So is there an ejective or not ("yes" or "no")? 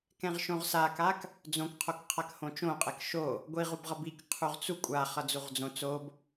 yes